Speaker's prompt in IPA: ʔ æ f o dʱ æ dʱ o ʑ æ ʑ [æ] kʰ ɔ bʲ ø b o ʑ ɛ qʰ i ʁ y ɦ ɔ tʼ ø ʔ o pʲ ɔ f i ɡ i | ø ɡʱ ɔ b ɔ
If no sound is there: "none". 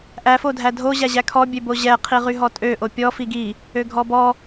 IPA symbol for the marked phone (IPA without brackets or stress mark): æ